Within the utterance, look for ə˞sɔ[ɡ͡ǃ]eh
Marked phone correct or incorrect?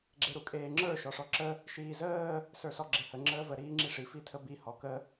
incorrect